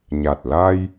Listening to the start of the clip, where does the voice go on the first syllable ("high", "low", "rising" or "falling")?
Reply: low